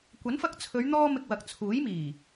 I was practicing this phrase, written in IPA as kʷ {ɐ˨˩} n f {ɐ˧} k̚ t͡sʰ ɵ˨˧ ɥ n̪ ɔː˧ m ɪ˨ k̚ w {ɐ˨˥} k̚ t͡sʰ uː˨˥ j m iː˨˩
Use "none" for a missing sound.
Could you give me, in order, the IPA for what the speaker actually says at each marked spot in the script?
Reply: ɐ˨˥, ɐ˧, ɐ˨

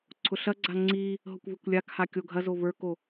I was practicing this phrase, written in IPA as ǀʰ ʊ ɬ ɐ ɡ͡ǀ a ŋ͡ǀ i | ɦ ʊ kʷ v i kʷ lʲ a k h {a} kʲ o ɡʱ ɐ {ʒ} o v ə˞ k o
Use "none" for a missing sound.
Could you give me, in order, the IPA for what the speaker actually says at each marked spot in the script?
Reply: a, z

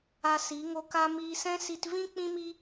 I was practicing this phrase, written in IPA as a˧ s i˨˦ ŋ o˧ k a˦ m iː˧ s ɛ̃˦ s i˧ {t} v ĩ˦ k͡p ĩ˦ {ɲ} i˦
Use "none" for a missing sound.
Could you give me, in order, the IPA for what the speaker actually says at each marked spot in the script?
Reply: t, m

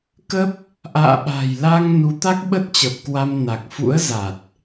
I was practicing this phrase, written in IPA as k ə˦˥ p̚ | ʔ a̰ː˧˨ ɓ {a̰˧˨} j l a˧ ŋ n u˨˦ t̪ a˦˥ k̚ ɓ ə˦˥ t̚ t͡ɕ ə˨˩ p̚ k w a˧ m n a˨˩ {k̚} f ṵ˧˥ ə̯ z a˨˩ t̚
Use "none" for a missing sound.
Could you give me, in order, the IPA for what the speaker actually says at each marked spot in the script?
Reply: a̤˨˩, k̚

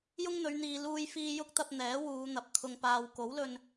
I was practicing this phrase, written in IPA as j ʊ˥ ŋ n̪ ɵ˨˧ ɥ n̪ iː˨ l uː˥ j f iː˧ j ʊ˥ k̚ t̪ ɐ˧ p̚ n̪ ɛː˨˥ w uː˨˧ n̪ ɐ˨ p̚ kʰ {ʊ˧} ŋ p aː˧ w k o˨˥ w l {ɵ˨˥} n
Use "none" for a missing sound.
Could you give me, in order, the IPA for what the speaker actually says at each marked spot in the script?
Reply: ʊ˧, ɵ˧

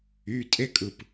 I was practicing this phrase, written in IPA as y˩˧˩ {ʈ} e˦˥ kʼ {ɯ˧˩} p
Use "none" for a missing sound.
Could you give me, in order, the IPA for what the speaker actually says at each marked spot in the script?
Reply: tʼ, ɯ˧˩

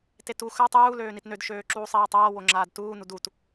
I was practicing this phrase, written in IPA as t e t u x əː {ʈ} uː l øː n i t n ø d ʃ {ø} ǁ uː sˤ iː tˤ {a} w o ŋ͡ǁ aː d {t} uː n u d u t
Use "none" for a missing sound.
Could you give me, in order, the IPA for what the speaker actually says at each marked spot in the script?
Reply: tˤ, øː, aː, t

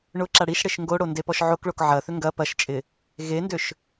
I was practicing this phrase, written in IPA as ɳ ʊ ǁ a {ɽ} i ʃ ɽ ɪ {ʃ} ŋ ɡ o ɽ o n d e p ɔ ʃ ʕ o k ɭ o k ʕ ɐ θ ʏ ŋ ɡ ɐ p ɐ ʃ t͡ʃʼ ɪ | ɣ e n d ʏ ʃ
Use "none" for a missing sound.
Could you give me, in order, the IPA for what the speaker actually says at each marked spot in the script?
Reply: ɽ, ʃ

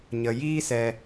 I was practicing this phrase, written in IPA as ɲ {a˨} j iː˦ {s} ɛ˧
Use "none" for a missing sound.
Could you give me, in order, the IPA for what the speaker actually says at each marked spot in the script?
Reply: ə˨, s

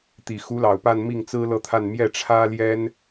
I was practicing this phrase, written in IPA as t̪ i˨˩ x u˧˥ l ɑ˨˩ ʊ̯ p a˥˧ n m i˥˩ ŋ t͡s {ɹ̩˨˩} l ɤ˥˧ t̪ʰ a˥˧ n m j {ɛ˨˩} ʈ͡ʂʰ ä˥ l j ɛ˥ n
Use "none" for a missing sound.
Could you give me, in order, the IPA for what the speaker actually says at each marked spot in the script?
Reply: ɹ̩˥, ɛ˥˩

